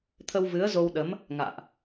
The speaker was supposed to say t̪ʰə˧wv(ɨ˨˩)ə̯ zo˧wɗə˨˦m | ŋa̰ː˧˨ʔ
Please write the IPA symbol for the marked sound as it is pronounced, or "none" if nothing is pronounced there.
ɨ˨˦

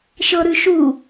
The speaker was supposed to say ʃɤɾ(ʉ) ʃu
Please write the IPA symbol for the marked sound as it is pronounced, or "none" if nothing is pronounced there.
ʉ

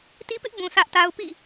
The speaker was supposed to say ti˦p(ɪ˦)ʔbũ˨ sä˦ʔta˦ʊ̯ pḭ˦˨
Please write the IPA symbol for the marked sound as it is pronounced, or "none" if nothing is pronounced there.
ɪ˦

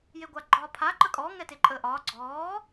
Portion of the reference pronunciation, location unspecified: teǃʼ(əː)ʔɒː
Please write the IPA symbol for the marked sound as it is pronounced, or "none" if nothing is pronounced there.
əː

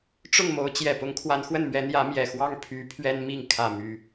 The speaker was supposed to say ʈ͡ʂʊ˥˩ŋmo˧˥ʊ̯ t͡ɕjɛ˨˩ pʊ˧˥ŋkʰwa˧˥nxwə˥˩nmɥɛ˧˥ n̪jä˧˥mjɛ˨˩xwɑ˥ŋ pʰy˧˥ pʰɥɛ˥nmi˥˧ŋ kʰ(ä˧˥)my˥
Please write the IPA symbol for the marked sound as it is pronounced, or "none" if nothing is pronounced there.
ä˥˩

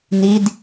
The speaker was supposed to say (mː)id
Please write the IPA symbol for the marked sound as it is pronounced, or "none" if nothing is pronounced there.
n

